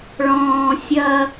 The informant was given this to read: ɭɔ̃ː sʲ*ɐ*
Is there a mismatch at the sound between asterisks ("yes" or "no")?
no